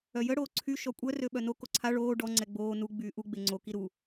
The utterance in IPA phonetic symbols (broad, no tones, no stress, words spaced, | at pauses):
œjə ɽoːǀʰy ʃɔkʷʼœ røɓœno koǀʰa ɭoː ɖɔ ŋ͡ǀɛɡ͡boː nu ɡ͡byːʔu ɡ͡beŋ͡ǀo kiɾu